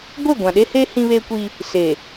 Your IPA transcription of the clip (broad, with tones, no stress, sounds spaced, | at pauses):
ɡʷ e˦˨ ɡʷ ã˨ ɗ e˦ h e˦ h ĩ˦ β e˦ kʷ i˦ | s e˨